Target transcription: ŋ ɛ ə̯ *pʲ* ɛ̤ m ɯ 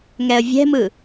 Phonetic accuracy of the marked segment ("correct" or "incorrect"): incorrect